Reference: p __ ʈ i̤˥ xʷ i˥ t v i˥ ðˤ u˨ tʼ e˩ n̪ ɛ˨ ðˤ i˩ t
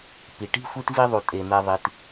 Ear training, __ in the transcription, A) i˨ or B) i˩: B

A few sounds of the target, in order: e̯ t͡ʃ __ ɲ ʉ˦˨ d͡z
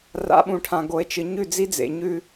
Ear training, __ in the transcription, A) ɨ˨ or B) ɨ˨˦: A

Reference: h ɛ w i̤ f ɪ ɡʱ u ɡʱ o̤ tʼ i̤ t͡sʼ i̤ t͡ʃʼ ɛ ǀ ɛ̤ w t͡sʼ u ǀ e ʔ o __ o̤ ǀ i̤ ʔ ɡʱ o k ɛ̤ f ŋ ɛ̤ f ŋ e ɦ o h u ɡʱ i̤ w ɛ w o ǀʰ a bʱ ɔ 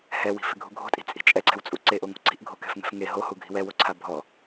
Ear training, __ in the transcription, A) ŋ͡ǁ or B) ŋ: B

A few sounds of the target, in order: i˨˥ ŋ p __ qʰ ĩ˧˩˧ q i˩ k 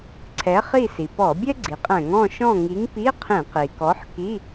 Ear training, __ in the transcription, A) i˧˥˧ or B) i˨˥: A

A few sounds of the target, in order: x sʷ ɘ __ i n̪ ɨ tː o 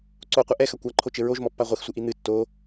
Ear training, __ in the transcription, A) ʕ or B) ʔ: B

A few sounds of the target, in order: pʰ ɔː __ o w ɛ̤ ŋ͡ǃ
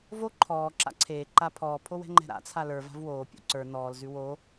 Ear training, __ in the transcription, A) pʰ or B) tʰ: A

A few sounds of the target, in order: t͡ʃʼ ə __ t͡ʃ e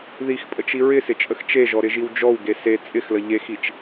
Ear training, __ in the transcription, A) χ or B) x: B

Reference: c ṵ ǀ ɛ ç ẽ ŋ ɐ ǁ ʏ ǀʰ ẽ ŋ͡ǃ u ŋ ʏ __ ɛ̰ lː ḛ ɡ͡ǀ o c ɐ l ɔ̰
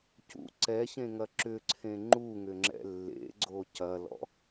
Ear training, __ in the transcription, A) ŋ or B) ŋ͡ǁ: B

